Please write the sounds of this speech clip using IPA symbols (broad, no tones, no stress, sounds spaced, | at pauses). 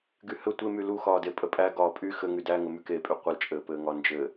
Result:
ɡ y h ɘ tʷ e m y l u x ɒː d e pʼ ə pʼ æ ɡ ɒː pʼ y x ɘ ŋ y d æ ŋ ɘ m y k e pʼ y qʷ ə l t͡ʃʼ ɘː p ɘː ŋ ɒ n d͡ʒ ɘ